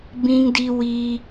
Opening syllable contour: high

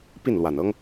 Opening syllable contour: falling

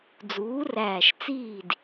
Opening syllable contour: rising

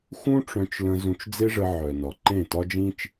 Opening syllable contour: high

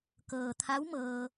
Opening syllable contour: low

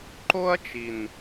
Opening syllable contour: high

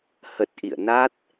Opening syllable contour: low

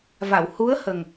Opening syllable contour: low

